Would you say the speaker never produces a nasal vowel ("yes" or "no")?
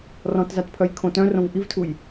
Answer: no